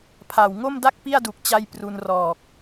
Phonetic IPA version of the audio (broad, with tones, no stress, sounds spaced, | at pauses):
pʰ a˨˩ w ŋ o˥˩ m d a˥˩ k̚ p i˥˩ a̯ d u˨˩ k̚ t͡ɕ a˧ j p r u˧ n r ɔː˨˩ k̚